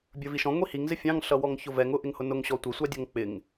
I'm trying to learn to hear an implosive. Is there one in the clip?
no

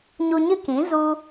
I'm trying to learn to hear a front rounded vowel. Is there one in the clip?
no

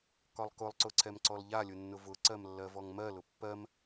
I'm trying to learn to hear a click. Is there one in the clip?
yes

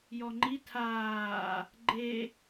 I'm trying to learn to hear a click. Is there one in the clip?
yes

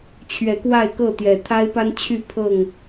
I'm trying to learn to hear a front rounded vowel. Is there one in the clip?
yes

